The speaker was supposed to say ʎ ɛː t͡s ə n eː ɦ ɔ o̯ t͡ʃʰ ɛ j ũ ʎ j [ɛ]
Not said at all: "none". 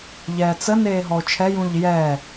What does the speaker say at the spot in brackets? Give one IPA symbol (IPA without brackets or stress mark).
ɛː